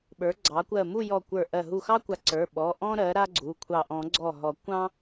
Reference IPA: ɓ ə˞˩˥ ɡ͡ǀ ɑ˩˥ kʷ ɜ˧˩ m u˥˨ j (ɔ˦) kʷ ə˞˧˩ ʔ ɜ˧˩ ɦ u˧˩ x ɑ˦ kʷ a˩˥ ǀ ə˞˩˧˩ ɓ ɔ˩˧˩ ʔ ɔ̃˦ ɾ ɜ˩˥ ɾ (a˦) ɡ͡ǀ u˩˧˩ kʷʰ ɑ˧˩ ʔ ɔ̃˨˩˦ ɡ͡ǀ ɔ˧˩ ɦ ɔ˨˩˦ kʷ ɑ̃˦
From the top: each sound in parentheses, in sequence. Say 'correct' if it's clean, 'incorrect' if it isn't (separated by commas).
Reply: incorrect, correct